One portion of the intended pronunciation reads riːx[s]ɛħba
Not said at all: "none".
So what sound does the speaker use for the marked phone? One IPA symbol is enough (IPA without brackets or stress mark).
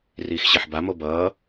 ɕ